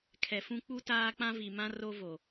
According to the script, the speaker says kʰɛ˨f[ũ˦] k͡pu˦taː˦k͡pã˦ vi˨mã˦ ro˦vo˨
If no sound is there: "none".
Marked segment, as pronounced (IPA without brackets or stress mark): ũ˦